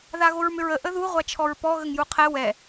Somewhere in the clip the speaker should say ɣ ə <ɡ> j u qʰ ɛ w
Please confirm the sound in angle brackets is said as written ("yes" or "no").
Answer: no